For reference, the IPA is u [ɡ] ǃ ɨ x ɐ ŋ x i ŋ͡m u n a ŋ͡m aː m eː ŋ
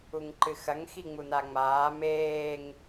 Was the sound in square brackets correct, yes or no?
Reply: no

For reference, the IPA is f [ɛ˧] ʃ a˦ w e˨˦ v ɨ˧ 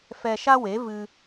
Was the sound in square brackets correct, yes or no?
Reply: yes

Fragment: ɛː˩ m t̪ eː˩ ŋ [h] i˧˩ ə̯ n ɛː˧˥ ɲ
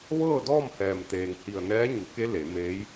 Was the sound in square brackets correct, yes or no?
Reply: yes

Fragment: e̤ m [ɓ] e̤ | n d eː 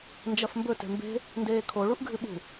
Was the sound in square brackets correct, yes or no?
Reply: no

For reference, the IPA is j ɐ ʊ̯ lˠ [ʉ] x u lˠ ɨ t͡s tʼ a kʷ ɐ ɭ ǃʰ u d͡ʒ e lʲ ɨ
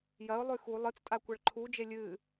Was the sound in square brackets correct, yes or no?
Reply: yes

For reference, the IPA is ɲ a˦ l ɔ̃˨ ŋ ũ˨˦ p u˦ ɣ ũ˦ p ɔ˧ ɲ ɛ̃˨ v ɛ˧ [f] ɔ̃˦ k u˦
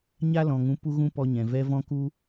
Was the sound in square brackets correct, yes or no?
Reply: no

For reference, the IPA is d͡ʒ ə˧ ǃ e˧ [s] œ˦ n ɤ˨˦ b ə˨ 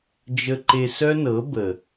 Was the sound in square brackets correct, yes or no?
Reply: yes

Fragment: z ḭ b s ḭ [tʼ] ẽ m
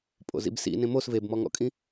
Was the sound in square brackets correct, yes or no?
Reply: no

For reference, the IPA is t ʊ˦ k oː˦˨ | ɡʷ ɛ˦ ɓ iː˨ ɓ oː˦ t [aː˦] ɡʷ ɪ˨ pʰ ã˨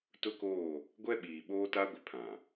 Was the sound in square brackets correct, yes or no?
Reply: no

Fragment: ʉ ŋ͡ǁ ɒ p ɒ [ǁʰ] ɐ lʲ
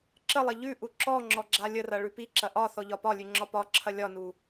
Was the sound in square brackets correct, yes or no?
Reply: yes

